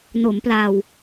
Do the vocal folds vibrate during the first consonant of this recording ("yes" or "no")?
yes